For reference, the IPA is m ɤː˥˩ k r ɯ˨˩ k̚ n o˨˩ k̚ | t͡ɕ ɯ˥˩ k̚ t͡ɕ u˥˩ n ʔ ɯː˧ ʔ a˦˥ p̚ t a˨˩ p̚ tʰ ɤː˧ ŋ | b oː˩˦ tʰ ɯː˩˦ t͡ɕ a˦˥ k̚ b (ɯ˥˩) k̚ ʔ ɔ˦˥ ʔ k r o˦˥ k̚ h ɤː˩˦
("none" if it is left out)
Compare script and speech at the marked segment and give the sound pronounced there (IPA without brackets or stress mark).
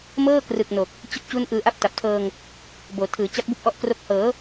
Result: u˥˩